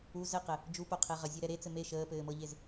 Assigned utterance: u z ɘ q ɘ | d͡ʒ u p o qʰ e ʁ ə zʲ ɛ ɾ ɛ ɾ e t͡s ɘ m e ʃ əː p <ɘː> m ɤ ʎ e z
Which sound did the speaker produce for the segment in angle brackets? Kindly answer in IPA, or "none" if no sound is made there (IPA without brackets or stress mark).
ɘː